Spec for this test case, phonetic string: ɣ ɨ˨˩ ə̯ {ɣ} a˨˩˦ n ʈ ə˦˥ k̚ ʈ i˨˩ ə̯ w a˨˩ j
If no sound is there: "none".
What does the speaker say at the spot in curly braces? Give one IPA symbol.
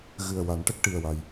w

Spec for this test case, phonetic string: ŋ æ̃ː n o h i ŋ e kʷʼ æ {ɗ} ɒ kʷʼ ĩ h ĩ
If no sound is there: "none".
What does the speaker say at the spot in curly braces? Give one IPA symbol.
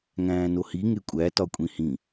t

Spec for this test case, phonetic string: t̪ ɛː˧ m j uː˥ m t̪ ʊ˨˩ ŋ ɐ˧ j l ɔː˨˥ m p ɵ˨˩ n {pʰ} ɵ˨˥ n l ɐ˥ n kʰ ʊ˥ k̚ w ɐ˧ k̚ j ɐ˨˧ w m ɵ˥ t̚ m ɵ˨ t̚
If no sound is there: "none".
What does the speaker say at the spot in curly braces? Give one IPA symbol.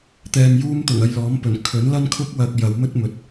kʰ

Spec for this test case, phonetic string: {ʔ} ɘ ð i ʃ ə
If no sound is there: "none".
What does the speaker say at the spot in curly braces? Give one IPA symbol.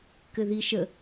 k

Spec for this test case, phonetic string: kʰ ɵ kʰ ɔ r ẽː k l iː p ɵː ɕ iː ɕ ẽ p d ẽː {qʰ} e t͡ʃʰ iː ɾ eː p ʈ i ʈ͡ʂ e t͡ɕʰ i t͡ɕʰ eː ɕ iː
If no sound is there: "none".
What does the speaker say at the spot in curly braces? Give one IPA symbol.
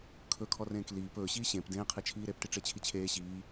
qʰ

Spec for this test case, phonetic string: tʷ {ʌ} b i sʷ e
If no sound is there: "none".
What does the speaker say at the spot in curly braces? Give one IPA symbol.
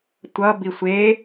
ʌ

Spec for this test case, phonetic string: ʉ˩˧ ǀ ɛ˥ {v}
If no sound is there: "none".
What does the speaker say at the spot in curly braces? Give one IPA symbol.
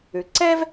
v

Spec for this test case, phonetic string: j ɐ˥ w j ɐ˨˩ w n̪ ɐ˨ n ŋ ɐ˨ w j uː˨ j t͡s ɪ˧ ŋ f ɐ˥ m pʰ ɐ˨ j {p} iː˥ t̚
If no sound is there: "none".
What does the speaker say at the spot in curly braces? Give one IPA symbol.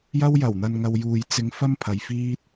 f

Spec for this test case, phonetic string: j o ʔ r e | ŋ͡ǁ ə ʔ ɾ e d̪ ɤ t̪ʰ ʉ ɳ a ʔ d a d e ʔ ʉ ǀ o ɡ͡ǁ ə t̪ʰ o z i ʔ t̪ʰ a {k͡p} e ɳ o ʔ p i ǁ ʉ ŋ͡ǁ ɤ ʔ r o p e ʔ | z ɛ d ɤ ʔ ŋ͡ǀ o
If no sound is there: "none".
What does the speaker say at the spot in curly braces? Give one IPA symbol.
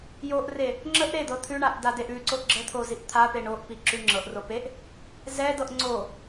p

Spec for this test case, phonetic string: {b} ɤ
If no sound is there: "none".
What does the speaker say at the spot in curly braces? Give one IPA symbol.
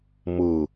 m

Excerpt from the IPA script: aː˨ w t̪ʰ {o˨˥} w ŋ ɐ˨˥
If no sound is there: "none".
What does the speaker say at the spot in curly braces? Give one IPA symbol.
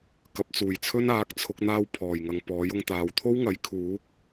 o˥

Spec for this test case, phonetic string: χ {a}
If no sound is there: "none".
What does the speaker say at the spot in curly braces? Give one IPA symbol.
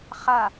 a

